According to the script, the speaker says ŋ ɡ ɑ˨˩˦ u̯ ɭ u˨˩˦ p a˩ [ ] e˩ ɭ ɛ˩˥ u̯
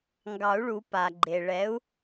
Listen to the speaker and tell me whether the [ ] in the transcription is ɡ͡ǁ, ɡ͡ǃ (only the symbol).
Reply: ɡ͡ǃ